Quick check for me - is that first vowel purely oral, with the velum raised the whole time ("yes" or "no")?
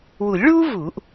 yes